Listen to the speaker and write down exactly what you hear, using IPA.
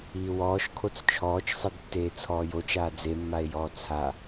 iː w ɔː ʃ kʰ o t͡s t͡ʃʰ ɔː t͡ʃ sˤ i d tː eː t͡sʰ ɔː j o t͡ʃ aː d͡z e mː a e̯ j ɔː t͡sʰ a

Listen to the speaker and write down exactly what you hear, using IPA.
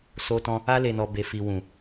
s o˧ t ɔ̃˧ | a˧ l e˨ n ɔ˨ b e˨ f i˨ w ũ˨

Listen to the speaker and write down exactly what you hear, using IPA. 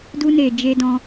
d u˧ n e˨ d͡ʒ e˧ d ɔ̃˧

